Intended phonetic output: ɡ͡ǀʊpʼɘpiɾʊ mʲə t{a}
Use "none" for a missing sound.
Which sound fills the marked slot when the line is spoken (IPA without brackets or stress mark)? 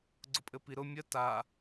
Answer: a